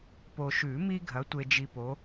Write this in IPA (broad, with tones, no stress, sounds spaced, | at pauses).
p o˨ ʃ ʉ˨˩˦ m i˥ ɡʱ ɐ˩˥ tʷ e˨ d͡ʒ i˨ p o˩˥